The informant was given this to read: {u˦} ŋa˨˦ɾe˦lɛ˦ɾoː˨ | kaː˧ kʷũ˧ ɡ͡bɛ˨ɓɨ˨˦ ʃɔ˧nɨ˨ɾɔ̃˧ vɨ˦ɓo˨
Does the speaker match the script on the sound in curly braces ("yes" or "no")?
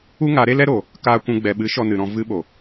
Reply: yes